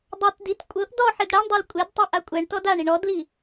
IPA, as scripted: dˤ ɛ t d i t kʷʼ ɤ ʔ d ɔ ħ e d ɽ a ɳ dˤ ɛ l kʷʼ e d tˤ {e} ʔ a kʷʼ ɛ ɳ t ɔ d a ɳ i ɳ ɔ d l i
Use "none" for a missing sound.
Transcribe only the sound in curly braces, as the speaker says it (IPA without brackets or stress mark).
i